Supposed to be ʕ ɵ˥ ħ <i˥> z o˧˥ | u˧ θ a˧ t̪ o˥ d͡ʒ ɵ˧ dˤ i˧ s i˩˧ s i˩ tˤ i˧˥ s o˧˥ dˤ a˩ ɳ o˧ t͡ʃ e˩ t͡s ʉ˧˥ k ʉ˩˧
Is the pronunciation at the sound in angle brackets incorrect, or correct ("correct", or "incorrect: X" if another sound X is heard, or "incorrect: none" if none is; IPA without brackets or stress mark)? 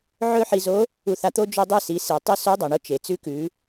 incorrect: i˧